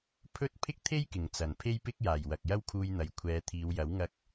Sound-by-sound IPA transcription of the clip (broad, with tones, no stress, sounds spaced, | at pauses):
pʰ ɵ˥ t̚ pʰ ɪ˥ k̚ t̪ʰ e˥ j k ɪ˨˩ ŋ t͡s ɐ˨˩ n pʰ e˥ j p ɪ˥ k̚ j aː˨˩ j w ɐ˨ k̚ j ɐ˥ w kʰ uː˧ j n̪ ɐ˨ j kʷʰ ɛː˨˧ t̪ʰ iː˨˧ w j ɐ˨˥ w ŋ ɐ˧ k̚